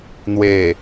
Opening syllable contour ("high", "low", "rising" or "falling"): low